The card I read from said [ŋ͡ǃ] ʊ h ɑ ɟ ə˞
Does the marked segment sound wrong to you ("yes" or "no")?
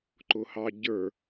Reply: yes